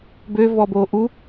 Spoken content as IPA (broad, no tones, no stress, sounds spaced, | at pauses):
b ø v ɔ b o ʔ u